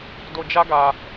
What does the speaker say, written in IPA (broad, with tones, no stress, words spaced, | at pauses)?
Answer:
do˧d͡ʒa˦ɡa˧